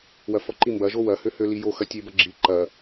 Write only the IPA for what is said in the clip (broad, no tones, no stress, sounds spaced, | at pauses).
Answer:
w ɐ f ɔ ǃ i m b ɐ ʒ o w ɐ h ø h ø l i j o x ɐ tʲ e b ɐ ɡ͡ǁ i ǃ ɐ